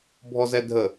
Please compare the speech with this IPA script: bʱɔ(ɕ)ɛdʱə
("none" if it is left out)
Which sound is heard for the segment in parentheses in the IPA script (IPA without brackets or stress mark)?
z